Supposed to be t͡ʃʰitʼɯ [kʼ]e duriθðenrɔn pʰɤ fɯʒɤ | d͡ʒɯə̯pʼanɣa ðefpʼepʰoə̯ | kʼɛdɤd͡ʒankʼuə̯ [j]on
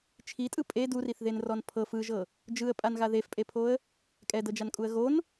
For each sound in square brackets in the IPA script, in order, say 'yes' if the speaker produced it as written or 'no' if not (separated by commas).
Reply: no, no